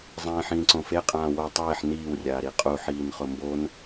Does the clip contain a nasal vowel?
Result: yes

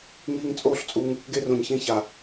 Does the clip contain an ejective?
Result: yes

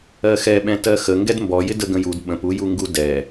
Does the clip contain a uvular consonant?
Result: no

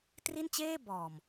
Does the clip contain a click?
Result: no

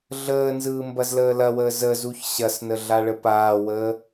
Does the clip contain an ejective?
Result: no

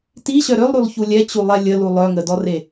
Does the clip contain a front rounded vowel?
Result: yes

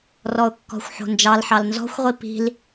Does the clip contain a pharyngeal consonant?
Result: yes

